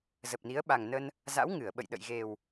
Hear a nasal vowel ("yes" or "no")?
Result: no